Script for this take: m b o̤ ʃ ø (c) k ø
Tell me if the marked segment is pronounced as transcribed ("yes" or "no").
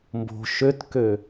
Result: no